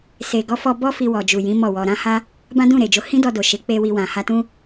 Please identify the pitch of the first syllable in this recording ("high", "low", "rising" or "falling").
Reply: low